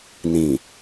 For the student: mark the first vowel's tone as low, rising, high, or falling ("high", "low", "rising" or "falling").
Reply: low